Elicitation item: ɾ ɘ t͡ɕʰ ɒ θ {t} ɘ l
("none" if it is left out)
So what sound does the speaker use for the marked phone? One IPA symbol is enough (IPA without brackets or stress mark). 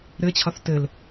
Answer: t